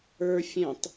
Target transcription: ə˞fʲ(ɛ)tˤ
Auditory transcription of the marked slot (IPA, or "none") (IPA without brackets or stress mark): ɛ̃